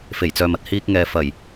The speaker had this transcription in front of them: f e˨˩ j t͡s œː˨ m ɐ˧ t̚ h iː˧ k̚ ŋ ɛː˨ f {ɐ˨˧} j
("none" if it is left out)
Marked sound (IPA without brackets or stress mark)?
ɐ˨˩